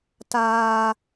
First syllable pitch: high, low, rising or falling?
high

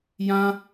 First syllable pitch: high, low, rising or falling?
high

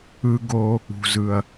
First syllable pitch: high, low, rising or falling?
low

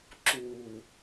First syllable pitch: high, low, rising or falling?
low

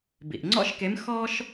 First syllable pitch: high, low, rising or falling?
low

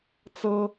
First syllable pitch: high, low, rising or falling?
high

